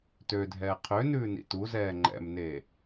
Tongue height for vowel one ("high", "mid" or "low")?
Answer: mid